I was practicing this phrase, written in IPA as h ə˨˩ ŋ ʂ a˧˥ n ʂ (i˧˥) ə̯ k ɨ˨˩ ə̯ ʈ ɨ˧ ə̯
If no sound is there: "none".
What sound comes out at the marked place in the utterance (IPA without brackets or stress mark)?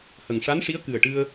i˧˥